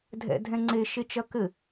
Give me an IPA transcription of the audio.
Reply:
dʱɛ̰dʱɛ̃ŋ͡ǀe ʃet͡ʃɐkɘ

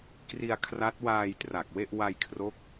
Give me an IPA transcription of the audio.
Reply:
kri˧a̯kʰra˦˥t̚waː˧j tra˨˩k̚we˥˩ʔ wa˧jkʰro˦˥k̚

